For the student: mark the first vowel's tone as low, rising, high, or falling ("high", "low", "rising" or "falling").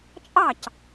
falling